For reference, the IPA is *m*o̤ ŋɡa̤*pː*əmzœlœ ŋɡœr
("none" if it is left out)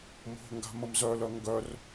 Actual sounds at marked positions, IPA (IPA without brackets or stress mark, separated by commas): m, m